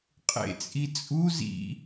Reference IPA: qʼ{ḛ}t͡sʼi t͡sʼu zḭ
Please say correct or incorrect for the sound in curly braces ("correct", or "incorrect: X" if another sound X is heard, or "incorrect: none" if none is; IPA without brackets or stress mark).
correct